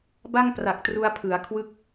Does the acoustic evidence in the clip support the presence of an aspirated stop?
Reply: yes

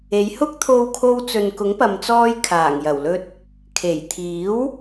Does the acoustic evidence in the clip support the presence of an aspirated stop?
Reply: yes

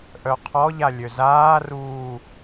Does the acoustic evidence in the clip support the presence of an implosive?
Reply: no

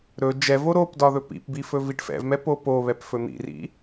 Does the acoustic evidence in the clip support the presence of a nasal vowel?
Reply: no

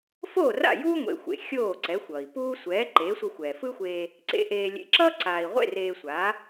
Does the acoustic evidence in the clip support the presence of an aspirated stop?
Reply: no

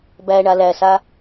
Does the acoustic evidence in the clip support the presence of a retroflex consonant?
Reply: yes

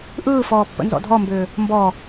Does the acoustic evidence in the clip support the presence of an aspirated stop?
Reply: no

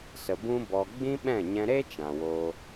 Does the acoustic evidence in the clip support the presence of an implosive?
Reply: yes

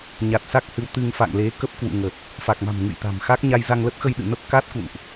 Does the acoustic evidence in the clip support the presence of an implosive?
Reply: yes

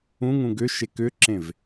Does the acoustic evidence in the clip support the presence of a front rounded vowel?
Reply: yes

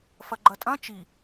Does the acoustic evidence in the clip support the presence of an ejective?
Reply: yes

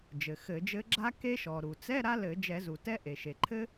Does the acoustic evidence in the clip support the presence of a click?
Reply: yes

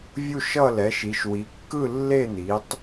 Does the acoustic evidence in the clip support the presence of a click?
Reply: no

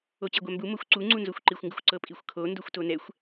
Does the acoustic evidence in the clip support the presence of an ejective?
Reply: yes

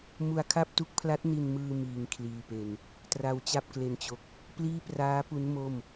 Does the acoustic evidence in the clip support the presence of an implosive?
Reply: no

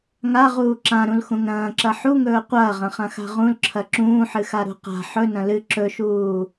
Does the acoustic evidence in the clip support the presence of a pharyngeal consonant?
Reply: yes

